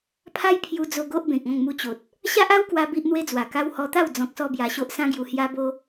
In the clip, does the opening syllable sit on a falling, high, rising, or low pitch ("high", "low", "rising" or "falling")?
high